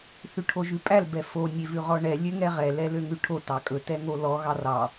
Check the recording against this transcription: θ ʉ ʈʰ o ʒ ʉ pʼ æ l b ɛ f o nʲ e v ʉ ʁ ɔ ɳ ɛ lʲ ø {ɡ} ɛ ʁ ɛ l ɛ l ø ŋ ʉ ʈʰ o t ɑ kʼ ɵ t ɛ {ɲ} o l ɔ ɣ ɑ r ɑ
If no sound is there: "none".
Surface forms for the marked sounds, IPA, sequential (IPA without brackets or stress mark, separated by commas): ŋ, ŋ